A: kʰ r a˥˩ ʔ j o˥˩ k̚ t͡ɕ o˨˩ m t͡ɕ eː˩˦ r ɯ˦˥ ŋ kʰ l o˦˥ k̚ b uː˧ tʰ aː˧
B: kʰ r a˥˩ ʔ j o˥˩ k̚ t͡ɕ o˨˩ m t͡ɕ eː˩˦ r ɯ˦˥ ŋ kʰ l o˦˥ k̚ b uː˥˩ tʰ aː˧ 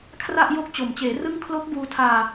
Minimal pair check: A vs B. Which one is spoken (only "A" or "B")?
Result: A